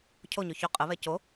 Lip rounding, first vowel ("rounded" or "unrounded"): rounded